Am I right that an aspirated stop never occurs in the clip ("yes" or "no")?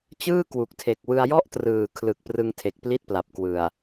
no